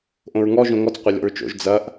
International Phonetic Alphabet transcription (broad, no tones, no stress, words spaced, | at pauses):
ʔõɹŋɔ ʒõŋɔt͡s qʷɐlʲɔ̰ɹt͡ʃo̰ʒ d͡zɐʔ